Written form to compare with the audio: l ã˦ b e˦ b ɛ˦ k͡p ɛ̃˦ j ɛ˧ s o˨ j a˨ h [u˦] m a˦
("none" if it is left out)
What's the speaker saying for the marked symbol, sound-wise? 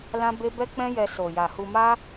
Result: u˧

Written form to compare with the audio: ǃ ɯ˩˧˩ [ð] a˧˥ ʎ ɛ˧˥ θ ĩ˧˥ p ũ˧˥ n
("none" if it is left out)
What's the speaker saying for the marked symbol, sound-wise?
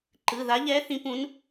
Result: ð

